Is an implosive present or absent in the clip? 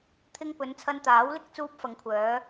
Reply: absent